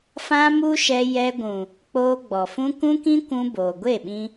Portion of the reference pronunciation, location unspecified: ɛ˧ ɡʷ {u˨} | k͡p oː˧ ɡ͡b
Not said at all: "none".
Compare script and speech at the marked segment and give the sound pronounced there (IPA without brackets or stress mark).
ũ˨